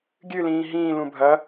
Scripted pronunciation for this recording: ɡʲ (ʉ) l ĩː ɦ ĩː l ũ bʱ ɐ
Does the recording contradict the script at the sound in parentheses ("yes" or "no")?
yes